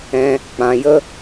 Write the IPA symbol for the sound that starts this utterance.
ɛ̃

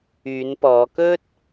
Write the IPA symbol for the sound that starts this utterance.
yː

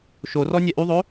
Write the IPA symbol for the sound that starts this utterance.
ʃ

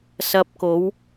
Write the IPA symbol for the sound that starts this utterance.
s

